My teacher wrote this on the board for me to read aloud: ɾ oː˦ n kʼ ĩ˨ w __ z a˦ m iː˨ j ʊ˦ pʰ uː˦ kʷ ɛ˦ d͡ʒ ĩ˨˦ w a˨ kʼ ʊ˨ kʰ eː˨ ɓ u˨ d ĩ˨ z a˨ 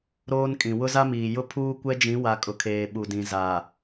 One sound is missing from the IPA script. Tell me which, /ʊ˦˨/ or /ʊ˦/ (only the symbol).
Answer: ʊ˦